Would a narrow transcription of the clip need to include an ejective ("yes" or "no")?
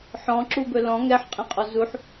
yes